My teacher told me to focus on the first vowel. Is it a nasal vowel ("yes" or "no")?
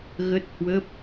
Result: no